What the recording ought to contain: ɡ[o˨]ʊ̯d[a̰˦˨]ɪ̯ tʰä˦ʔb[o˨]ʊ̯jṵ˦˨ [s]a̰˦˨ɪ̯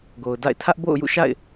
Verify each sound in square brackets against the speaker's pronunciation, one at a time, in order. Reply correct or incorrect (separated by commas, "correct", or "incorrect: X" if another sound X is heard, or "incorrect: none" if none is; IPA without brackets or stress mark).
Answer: correct, correct, incorrect: o̰˦˨, incorrect: ʃ